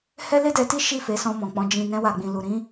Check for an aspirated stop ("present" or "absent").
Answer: absent